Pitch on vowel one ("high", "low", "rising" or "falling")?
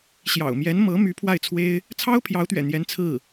low